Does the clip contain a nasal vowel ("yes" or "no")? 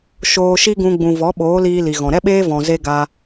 yes